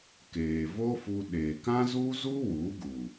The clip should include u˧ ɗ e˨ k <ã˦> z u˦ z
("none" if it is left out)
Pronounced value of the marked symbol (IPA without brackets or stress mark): ã˦